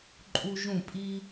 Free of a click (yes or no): no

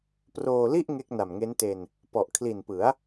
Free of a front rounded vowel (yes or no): yes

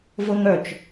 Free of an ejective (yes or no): yes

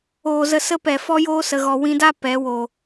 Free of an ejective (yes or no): yes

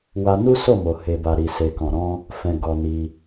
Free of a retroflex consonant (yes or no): yes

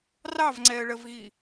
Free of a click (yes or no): no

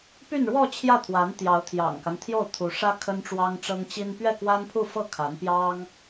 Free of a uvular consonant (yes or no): yes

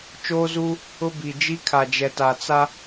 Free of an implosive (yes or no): yes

